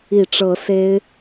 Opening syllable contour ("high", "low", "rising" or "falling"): low